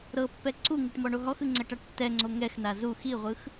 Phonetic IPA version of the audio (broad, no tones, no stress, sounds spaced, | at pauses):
ɾ ɤ pː ɛ ǀ u ŋ u ʈ m ɔ ɳ o ɦ ɔ x ɯ ŋ͡ǀ ɛ ʈ a ʈ tː ɛ ŋ͡ǀ o ŋ ɛ x n a z u x i ʁʷ ɯ x